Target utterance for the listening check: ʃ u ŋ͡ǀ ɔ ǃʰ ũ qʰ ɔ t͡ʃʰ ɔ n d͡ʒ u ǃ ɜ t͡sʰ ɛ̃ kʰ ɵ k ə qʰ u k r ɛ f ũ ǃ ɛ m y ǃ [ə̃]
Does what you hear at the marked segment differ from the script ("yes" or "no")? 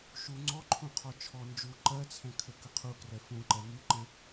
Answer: no